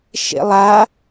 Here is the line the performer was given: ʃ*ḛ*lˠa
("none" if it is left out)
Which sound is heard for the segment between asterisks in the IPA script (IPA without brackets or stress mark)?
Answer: ḛ